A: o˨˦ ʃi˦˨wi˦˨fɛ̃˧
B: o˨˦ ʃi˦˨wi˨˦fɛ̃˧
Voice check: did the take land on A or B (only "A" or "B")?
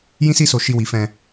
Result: B